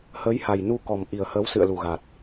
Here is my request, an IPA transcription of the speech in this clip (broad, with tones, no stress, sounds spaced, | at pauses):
h əː˨˦ j h a˨˩ j n u˧ k ɔ˨˩ m ʔ i˨˩ ə̯ h əː˨˦ w s ɨ̰˧˨ ə̯ l u˨˩ ɣ a˨˩ t̚